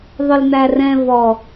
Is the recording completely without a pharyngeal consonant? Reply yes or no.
yes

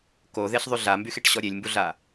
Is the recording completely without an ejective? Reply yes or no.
yes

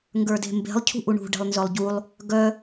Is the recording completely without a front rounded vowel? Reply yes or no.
no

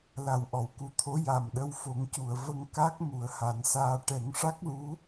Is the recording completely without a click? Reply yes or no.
yes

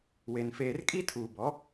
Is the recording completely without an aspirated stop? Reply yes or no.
no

